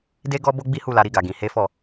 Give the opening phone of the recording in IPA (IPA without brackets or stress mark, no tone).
d